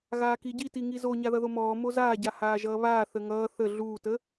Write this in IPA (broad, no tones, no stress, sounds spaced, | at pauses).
ɣ aː k i ɟ i t i ŋ i z o ɲ a ð ʌ ð o m ɔː m o z aː ɟ a h aː ʒ ʌː β aː θ ə ŋ ʌː θ ə ɮ uː t ə